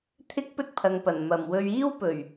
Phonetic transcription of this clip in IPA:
t̪ʰɪ˥k̚ pɵ˥t̚pʰɐ˨ŋpɐ˨˩n mɐ˨˩mwɵ˧ɥ iː˥wpɵ˨˩ɥ

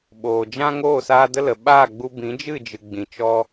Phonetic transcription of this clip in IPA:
ɓoː˨d͡ʒã˦ ŋoː˦˨saː˧ də˦lə˨ ɓaː˦˨ɡ͡bu˧bĩ˨˦ d͡ʒɨ˦˨d͡ʒɨ˨ ɡ͡bĩ˨t͡ʃɔ˧

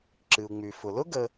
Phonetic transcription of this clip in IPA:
ǁɨ˩u̯ŋ͡my˩fʊ˩ lʊ˥ɡə˨

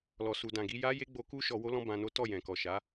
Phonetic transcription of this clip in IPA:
lɔ˨su˨dã˨ɡi˧ ja˦je˦ɡ͡bo˧ ku˦ ʃɔ˧wo˦ lɔ̃˦bã˧no˦ tɔ˦˨jɛ̃˨kɔ˨ʃa˨˦

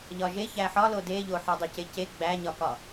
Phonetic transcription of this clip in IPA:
ʎɒʒe çæħɒlo deʎo ħɒdˤucece ɡ͡bæɲɒkɒ

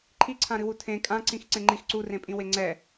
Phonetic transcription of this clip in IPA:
ǃʰiǀʰãɾɨwu tʰẽ kʼãǀĩx ǀẽŋ͡ǃix ǀurẽpʼĩwe ŋ͡ǀɛ

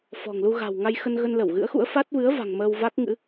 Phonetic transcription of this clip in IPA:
fɔ̤˨˩ŋlu˧ ɣa̤˨˩wŋa˧jxə˧n ɣə˧nlə˧˩wɣɨ̰˧˥ə̯xṵ˧˥ə̯ fa˦˥t̚vɨ˨˦ə̯va̤˨˩ŋ məː˧wva˦˥k̚ŋɨ̰˧˥

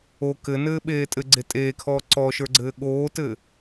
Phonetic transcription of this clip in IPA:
o kɘnɘːɓeː tʼɘɡ͡ǀe tʼeːkʰɔː ǀɔʃə˞ɡ͡ǀɘː ɠoːtɘ

